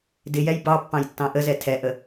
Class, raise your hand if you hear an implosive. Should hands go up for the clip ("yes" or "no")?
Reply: no